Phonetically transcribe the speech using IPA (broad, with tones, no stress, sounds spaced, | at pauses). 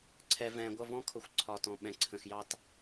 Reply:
ǀʰ ɛ˨ v ɛ̃ː˨ ɡʷ ʌ˦˨ v ɔ̃˦ kʰ ʊ˨ xʷ ǀʰ ɒ˨ t ɔ̃˨ ɓ ɛ̃˨ ǀʰ ə̃˨ x j ɑ˦ t